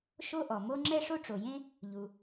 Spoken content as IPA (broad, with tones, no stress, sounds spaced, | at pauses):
ʃ o˥ ʔ ɔ˩ m o˥ ŋ͡ǁ ɛ˥ ʂ o˥ ʈ͡ʂ o˩ j ẽ˥ | ʎ u˩